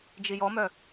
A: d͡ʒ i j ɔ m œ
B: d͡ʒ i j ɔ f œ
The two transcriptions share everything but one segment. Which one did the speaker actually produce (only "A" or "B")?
A